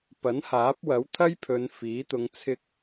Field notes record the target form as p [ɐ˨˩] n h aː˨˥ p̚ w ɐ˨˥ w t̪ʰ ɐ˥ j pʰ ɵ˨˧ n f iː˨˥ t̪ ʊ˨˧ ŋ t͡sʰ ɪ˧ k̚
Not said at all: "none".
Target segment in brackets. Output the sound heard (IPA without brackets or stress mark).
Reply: ɐ˨˥